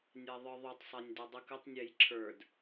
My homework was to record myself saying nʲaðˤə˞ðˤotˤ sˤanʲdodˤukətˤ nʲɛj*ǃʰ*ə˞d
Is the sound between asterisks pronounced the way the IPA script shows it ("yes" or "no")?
no